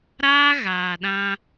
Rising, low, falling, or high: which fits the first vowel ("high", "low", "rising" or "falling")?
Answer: high